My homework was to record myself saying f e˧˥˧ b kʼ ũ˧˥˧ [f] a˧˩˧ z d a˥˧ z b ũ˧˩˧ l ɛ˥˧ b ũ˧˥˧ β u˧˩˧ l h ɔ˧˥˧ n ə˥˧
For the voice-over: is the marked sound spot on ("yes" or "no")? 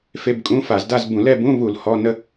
yes